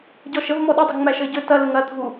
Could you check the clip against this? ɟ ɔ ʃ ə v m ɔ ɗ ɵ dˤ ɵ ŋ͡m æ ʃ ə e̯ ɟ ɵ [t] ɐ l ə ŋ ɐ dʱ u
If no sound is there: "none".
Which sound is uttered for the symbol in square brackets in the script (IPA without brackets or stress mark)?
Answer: t